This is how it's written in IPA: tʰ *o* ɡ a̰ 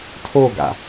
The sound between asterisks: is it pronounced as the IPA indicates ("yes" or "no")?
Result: yes